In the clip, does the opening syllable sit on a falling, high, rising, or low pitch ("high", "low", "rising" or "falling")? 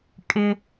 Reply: high